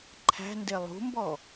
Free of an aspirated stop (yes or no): no